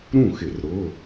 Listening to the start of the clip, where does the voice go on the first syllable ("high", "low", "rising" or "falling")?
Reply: falling